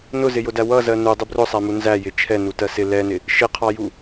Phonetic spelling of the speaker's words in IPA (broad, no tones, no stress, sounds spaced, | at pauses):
n ʊ z ɪ j ʊ d æ w ʌ z ɜ n u dˤ ʊ b r ʊ sˤ æ m u n z æ j ɪ t͡ʃʰ ɛ n u t ɜ s ɪ l ɛ n ɪ | ʃ ɪ qʰ ɑ j u